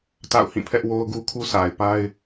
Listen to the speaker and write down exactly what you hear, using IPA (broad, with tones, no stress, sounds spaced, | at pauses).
t a̰˦˨ ʊ̯ h ĩ˦˨ pʰ ɛ˦ ʔ w o˦ ʊ̯ ɡ u˦ kʰ u˦ sʰ a˨ ɪ̯ p a˦ ɪ̯